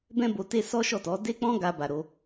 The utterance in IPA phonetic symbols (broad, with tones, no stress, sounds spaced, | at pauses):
b ɛ̃˦ b o˧ t e˦ s ɔ˦ ʃ ɔ˦˨ t ɔ˨˦ d e˦ k͡p ɔ̃˦ ɡ a˧ b a˧ ɾ o˦